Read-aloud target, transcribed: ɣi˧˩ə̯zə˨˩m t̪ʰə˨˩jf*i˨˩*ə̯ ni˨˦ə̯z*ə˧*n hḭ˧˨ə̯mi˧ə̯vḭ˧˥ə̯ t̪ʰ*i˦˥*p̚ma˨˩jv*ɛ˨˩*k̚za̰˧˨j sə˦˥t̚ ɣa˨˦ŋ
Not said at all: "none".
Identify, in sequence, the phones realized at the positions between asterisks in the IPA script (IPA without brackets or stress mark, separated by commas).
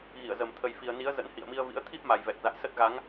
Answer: i˨˩, ə̰˧˥, i˦˥, ɛ˨˩